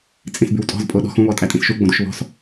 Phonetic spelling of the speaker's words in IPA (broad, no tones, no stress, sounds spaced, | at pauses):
t͡sʼ ĩ s b y w tʼ ɔ̤ z pʼ o ɗ ɔ̤ x ũ β ɔ tʼ æ tʼ ĩ s ʃ u ɡ͡b õ d u ʃ β ɔ̤ s